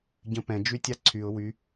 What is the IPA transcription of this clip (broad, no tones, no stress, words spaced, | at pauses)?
ɟə̃pɛ̃ d͡ʒytʲaǀʰyʊ̯ wy